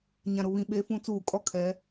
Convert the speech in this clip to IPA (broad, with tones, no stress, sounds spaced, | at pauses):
ɲ ã˨ ɾ ʊ˨ β ĩ˨ ɓ e˨˦ f ũ˨˦ t͡s uː˨ kʼ ɔ˦˨ kʰ ɛ˨˦